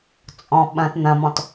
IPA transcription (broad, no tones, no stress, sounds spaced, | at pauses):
t͡sʼ ɔ̃ ɓ ɐ̃ t n̪ ɐ̃ m ɔ̃ t